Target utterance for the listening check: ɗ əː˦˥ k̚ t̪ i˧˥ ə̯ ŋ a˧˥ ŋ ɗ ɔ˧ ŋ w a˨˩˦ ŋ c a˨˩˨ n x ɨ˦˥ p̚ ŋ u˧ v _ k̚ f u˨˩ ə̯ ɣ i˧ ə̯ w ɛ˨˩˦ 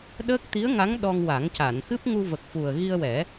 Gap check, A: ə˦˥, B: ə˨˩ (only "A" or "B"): B